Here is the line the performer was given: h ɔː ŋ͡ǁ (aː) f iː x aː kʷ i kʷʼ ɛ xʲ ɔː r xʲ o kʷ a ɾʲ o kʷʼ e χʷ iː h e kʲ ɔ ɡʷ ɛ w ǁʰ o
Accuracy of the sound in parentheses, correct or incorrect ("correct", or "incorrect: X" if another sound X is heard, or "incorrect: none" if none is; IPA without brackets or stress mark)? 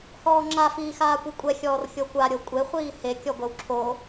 incorrect: a